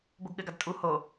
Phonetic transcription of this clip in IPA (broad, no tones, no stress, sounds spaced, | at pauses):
b o ɡ ɠ ɘ ɡ a d tʼ u h o